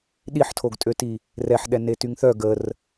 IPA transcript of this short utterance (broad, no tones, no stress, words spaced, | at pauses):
ɗiħtʰoɡtʼøti | rɛħɗɛ netyŋθœ ɡər